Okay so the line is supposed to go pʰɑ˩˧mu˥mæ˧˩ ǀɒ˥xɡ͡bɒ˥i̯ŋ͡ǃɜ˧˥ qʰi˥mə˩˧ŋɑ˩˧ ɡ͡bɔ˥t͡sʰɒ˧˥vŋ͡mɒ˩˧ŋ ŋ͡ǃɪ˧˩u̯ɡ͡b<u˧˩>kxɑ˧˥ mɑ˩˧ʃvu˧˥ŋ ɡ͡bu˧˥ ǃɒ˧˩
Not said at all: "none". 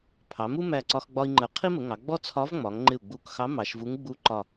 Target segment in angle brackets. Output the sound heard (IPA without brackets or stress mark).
u˧˩